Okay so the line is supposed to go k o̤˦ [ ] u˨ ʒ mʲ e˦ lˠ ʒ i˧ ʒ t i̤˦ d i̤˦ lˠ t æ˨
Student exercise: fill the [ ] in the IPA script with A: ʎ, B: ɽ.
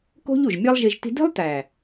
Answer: A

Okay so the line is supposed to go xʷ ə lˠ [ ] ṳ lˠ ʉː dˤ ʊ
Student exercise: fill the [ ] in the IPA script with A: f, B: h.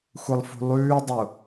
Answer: A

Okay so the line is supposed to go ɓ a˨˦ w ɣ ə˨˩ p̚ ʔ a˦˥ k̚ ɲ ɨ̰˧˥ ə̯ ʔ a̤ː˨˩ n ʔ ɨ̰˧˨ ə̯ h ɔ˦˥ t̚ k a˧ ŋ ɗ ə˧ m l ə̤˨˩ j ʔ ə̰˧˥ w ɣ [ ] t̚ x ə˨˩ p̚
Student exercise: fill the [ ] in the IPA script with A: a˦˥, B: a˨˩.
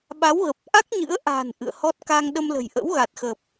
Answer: B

